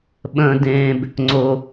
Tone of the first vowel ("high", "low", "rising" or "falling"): low